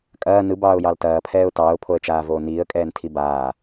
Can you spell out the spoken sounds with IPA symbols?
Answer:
kʼ ɐː n ɯ b ɑː ʊ̯ j ɑ l t ɐː pʰ ɛː ʊ̯ t ɑː ʊ̯ pʰ o ə̯ t͡ʃ aː v oː n iː ə̯ kʼ ɛː n tʰ i b aː

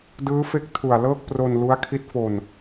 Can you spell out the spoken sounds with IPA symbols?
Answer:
d ɯː˦˥ f e˦˥ k̚ tʰ u˨˩ a̯ l ɤː˥˩ k̚ p r o˧ n l u˦˥ a̯ kʰ i˦˥ t̚ f o˧ n

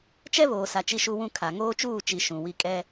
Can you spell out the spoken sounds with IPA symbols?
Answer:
t͡ʃ ɛ˦ β oː˨ s a˨ t͡ʃ i˦ ʃ u˦ w ũ˦ kʰ a˨ ŋ oː˦ t͡ʃ uː˦˨ t͡ʃ i˨ ʃ ũ˨ w i˦ kʼ ɛ˦

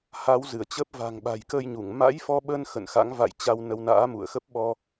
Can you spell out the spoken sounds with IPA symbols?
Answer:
h a˨˦ w z ɨ˧˩ ə̯ t͡ɕ ə˦˥ p̚ v a̤˨˩ ŋ ɓ a̤˨˩ j k ə˧ j ɲ u˧˩ ŋ m a̰˧˥ j f ɔ˧ ɓ ə˧ n x ə̰˧˨ n x a̰˧˥ ŋ v a̰˧˨ j t͡ɕ a˧ w n ə˧ w n a̰ː˧˥ m ṵ˧˨ ə̯ x ə˦˥ p̚ ɓ ɔ˧

